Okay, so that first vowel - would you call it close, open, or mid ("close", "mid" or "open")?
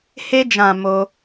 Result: mid